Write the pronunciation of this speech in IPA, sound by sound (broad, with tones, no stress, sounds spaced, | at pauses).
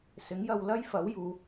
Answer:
s ɪ˨˥ ŋ j ɐ˧ w l ɐ˥ j f ɐ˨˥ w j uː˨˧